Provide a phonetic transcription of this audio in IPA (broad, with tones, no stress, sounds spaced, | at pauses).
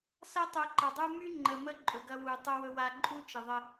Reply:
s ɐ˦ tˤ u˨ ǃ ɐ˨ dˤ u˦ m y˦ ŋ͡ǃ ə˨ m ə˦ ǃʼ ɵ˨ ɡ ɐ˦ w u˨ tˤ ɵ˦ w ɵ˦ w a˦ ǃʼ u˦ t͡ʃ ə˨ ðˤ ə˦